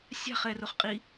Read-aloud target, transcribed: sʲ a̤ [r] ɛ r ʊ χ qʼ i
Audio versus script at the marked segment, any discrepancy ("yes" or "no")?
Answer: yes